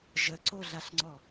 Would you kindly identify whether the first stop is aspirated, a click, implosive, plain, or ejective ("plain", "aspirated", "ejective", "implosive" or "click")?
click